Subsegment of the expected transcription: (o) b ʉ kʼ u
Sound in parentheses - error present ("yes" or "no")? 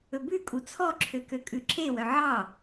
yes